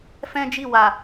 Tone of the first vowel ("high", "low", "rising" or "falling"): high